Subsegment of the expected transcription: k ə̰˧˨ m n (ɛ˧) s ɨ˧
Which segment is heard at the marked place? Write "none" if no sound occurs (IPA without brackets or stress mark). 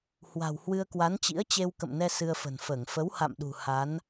ɛ˧